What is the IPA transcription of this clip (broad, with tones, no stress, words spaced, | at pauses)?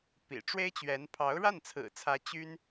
pḭ˨˩ ʈ͡ʂwe˥ɪ̯t͡ɕɥɛ˧˥n pʰɑ˧˥ʊ̯ɻa˥˩nt͡sʰɹ̩˨˩t͡sʰä˧˥ t͡ɕy˥n